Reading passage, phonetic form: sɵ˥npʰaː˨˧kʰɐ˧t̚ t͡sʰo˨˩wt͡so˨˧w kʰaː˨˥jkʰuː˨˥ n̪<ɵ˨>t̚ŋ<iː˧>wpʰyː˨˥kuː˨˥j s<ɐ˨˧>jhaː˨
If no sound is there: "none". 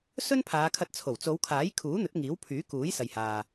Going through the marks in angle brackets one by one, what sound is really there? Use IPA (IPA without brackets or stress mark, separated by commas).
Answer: ɵ˨˥, iː˨˥, ɐ˨